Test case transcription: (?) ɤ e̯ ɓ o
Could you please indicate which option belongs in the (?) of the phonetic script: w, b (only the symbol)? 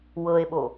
w